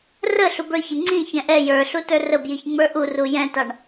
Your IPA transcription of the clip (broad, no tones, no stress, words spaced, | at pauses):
rə ɬubə˞çɪ ŋ͡ǀĩ çɛ̃ʔɛ jə˞ɬutə˞ rəbjiçŋ͡mə˞ ʔuru jɛ̃tɑɳ